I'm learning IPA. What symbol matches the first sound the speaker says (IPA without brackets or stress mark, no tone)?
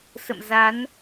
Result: s